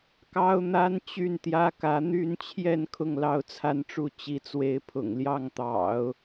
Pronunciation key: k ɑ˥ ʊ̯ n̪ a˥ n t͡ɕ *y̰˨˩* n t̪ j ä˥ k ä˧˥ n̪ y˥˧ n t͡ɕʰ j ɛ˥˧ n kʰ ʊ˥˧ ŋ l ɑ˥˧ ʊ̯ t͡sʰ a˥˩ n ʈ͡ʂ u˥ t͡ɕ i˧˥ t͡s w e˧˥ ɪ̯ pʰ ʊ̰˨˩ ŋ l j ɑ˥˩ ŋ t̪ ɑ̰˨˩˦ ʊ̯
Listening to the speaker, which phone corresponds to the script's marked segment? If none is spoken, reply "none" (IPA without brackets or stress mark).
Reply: y˥˩